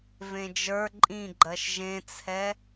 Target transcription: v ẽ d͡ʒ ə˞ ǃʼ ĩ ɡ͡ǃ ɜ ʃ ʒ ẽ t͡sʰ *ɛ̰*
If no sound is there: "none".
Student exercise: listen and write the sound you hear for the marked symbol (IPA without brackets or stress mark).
ɛ